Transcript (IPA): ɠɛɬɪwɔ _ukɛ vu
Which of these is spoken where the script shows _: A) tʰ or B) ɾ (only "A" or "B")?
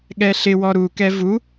B